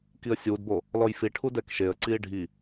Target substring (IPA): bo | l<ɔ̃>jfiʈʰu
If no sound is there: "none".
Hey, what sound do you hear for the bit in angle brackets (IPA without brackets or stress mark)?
ɔ